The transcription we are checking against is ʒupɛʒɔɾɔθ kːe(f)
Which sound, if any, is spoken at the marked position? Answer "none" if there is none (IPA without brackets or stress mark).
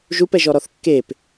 p